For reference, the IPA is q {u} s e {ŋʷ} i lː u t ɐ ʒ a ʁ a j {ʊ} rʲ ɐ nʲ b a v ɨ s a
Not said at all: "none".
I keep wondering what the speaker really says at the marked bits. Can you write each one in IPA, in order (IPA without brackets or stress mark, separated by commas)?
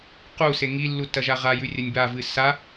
u, ŋ, ʉ